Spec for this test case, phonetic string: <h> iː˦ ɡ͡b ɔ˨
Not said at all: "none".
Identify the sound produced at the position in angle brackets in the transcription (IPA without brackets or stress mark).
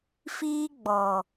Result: f